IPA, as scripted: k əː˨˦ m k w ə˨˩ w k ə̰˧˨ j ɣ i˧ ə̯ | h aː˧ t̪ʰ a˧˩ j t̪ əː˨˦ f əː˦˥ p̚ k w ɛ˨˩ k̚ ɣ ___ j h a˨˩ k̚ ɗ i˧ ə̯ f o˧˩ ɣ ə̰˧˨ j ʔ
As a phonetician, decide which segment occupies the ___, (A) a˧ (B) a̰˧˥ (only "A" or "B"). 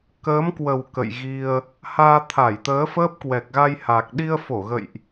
A